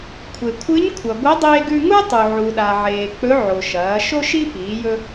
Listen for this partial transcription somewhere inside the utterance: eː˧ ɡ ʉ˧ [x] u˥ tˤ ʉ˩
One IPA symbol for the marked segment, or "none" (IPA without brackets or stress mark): ŋ